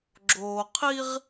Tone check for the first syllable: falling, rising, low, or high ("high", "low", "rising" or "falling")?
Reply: low